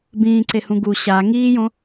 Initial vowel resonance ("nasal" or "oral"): nasal